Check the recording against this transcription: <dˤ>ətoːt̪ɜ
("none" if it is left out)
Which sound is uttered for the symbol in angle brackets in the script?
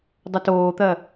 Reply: dˤ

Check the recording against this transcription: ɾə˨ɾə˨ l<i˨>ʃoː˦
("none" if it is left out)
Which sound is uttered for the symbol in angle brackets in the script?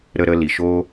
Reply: i˨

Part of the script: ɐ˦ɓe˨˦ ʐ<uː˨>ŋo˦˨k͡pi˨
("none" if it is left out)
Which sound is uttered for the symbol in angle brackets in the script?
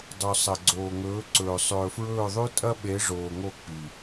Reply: oː˨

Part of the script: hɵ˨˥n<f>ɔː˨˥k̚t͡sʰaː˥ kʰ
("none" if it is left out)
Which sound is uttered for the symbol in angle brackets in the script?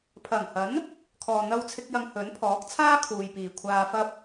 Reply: pʰ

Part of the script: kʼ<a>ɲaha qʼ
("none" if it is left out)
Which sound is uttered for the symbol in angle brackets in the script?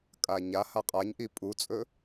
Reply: a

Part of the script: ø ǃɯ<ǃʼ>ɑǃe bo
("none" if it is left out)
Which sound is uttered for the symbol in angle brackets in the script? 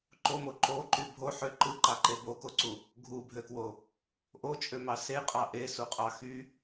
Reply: ǃ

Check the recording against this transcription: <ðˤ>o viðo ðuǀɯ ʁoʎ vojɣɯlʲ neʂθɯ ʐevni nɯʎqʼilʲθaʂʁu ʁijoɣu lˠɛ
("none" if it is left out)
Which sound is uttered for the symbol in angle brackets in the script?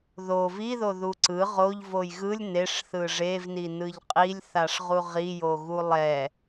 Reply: ð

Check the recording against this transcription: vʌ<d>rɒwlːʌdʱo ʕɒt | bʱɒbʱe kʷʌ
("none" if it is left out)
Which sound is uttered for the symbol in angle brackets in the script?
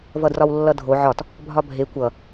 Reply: d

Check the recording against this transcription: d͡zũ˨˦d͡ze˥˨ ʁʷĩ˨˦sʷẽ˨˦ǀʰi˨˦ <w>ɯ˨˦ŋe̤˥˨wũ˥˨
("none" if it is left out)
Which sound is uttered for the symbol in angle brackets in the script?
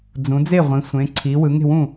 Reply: w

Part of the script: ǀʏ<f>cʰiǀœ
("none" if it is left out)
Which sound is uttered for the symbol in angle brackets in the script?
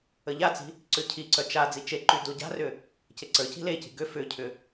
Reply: none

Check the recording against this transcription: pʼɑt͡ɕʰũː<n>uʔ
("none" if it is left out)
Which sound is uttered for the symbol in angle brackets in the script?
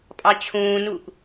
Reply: n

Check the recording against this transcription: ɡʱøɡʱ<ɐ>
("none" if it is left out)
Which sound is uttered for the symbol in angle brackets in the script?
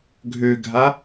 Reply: a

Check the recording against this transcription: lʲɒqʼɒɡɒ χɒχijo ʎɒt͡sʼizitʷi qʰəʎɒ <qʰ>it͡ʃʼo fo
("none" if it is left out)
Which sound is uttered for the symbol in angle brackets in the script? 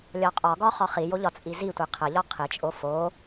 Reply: qʰ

